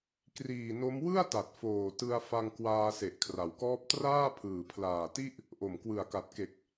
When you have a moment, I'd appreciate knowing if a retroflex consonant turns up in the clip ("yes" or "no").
no